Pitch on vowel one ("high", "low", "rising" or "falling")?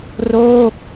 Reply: falling